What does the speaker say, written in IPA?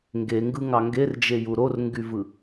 ŋ ɡ e ŋ ɡ ɯ ŋ ɑ ŋ ɡ e r d͡ʒ e j u ɾ o r ŋ ɡ y v ɯ

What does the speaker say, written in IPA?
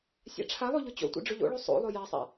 sʲ a̰ ʈ͡ʂʰ a lˠ o ʎ ʊ t͡ɕ o̰ tʷ ḭ ɖ͡ʐ ʊ ʎ o̰ ɭ o sˤ o̰ lˠ o j a sˤ a̰

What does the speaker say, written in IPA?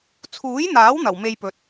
t͡sʰ uː˨˥ j n̪ aː˨˥ w n̪ ɐ˨˩ w m e˧ j p ɵ˨ t̚

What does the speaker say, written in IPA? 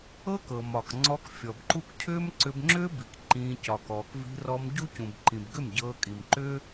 ɤ˦ k ɤ˨ m ɒ˨ k ŋ͡ǀ ɔ˧ k fʲ ɔ˨ b ǃ u˦ k cʰ ʏː˦ m ǀ ʏ˧ b ŋ͡ǁ ʏː˦ b i˨ k ǃ ĩː˧ c ɒ˨ k ɔː˨ k v i̤˧ r ɔ˧ m ɟ u˦ c ũ˨ b ǃ ĩ˨ b ɡ ʏ˦˨ m ɟ ɤː˧ kʼ i˨ m ǃ ʏ˦

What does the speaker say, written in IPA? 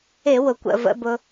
ɪ˧˩˧ w ʊ˩ kʷ ə̰˩˧˩ v ə̰˧˥˧ b ʊ˧

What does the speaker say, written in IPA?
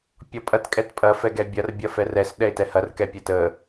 pʲ ɔ pʼ ɐ t kʼ ɛ t pʼ ɐ f ɛ ɡ ɛ bʲ ɐ r bʲ ɐ f ɛ r ɛ s ɗ ɛ ɪ̯ t ɛ h ɐ r k ɛ pʲ ɛ t ə

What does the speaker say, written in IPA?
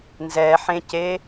n z ɛ ħ ẽ c e

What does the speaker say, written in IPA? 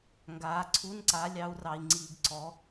ŋ ɡ aː˨˦ ǀʰ u˧˥˧ n ǀ a˨˦ lʲ ɑ˨˦ u̯ r ɑ˨ i̯ ŋ͡ǀ iː˨ ɡ ǀ ɔ˨˦

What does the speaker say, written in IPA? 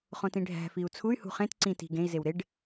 χ õ t ĩ ɖʱ æ̤ f i u̯ t͡sʰ u y̯ h ṳ χ ẽ t ǀ ĩ t i̤ ɡ ẽ i̯ z e w ɾ e ɖ

